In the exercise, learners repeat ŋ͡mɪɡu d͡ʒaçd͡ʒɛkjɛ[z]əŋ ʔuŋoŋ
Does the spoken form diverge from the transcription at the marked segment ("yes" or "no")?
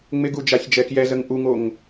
no